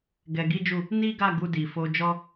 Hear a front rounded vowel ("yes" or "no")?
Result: no